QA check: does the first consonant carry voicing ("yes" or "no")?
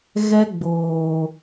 yes